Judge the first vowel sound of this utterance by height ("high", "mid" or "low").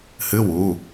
high